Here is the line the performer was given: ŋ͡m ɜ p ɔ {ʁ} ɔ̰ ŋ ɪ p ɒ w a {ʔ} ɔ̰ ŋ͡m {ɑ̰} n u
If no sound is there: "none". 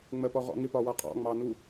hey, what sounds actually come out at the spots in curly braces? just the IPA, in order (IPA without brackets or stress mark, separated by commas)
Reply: ʁ, qʼ, ɑ